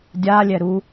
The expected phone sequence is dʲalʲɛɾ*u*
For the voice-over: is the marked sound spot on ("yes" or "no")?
yes